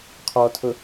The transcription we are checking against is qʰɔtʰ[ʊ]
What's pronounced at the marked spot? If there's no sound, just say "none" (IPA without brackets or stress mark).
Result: ʊ